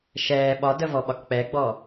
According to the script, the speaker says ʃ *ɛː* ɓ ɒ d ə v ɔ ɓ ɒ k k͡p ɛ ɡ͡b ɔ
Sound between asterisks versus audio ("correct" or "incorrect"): correct